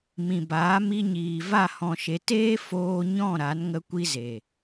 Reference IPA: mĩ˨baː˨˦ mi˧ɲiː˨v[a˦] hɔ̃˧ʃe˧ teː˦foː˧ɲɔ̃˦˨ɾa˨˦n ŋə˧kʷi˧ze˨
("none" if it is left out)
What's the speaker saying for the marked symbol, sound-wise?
a˦˨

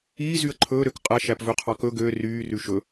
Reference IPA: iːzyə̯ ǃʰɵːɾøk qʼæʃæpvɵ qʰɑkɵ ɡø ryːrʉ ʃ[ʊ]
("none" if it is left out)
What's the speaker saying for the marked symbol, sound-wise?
ɵ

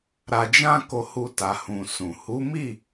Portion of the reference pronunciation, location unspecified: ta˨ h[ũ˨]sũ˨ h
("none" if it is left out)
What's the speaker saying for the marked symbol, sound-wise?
ũ˨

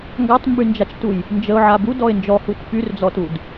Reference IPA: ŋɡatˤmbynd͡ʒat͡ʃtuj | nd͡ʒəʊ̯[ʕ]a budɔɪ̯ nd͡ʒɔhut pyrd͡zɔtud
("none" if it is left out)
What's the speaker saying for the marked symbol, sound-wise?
ʕ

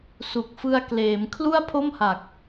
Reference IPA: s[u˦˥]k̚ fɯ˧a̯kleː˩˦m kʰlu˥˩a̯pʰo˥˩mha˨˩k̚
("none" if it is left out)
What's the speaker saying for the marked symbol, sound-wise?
u˨˩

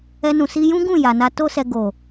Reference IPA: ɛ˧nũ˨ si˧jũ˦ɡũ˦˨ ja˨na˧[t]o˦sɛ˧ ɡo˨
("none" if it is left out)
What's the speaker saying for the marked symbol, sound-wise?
t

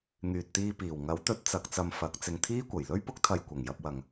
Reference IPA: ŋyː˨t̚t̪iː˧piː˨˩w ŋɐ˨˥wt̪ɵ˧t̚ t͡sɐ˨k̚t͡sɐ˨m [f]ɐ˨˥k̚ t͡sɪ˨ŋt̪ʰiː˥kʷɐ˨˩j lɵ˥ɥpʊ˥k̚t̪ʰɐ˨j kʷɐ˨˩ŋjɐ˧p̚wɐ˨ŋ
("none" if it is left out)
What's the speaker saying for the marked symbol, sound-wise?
f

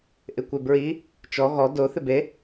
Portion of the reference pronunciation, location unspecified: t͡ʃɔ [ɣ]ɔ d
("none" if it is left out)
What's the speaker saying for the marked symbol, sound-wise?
ɣ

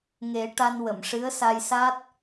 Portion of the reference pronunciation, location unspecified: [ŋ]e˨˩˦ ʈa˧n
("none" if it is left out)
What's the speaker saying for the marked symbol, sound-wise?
ŋ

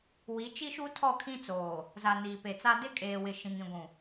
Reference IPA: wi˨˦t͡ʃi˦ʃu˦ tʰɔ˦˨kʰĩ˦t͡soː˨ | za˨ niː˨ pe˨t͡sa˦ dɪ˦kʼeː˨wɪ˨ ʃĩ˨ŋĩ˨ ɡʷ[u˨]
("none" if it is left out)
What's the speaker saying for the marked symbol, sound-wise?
ũ˨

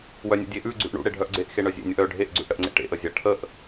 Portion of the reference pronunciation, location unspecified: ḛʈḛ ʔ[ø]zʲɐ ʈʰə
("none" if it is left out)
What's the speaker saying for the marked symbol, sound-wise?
ə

